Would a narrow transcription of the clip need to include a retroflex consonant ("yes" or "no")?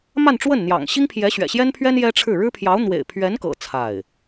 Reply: yes